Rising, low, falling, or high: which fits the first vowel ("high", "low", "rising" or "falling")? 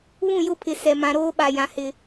falling